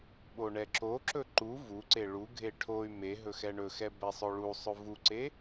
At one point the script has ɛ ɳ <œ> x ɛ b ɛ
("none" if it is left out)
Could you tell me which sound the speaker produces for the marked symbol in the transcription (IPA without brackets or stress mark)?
ɵ